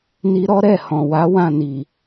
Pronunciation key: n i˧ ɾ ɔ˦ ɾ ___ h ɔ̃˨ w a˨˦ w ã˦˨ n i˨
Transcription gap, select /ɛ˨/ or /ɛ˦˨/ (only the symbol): ɛ˦˨